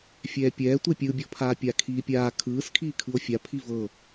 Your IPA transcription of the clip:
fʲ ɛː pʲ ɛː tʷ e pʲ ɯ bʲ ɔ pʰ aː pʲ a kʰ iː pʲ aː kʰ ɯː s kʰ iː kʰ ɯ o̯ fʲ a pʰ i v ɤ

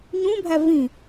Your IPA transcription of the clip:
ɲ ũ bʱ æ v ĩ

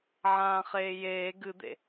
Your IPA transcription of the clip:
ʕ ãː χ eː j eː ɡ ɨ d̪ ḛ

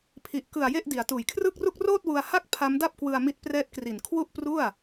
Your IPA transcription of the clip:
pʰ i˨˩ ʔ k ɯ˨˩ a̯ j e˥˩ ʔ d i˩˦ a̯ t uː˨˩ j kʰ r ɯː˥˩ k̚ r u˥˩ k̚ r oː˥˩ t̚ w u˧ a̯ h a˥˩ k̚ pʰ a˦˥ m d a˥˩ p̚ k w ɯ˧ a̯ m i˦˥ t̚ p r ɛː˦˥ t̚ k r i˨˩ n kʰ w u˥˩ ʔ p r u˥˩ a̯

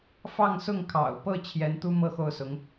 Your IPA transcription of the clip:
f ɑ˥˧ ŋ s ʊ˥˩ ŋ kʰ ɑ̰˨˩ ʊ̯ p ɤ˥˩ t͡ɕʰ j ɛ˧˥ n t̪ u˥ m ɤ˥˧ x o˥˩ ʊ̯ s ʊ˧˥ ŋ

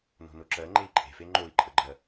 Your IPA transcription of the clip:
n o̤ n o ǁ ɜ ŋ͡ǃ e i̯ ǃʼ e̤ f e ŋ͡ǃ o i̯ ǃʼ ə ɡ͡ǃ ɜ

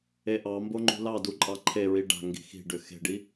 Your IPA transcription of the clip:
e ʔ ɑ m b o ŋ͡ǃ ṳ l ɑ d u ǃʼ ɑ ǃʰ e ɹ i ɖ a̤ ŋ ɡ i̤ x i̤ ɖ ʏ x e̤ ɖ i

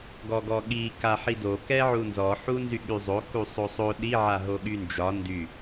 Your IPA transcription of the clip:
ɡ ɔ ɡ ɔ ɠ i k a ħ i d o k ɛ ʕ u n z ɔ ħ u n z y ɠ y zˤ o k u sˤ o sˤ o ɗ i ʕ a ɦ o ɠ y n d͡ʒ ɒ n d y

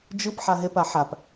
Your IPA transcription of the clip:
d͡ʒ ɯ p ħ a ɦ e p a ħ a p

